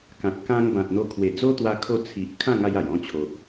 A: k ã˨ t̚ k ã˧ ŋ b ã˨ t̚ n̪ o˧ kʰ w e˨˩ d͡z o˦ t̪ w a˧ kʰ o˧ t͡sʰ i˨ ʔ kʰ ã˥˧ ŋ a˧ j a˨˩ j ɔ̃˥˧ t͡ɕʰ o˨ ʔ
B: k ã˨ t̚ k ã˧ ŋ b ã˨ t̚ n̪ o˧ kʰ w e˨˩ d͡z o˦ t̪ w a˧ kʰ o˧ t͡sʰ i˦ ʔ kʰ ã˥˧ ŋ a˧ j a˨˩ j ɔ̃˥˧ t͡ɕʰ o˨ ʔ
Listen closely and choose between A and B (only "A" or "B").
A